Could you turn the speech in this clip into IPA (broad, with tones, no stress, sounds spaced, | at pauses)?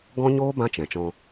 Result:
ɡ ɔ̃˦ ɲ oː˦ b ã˦ t͡ʃ ɛ̃˨ t͡ʃ ɔ̃˧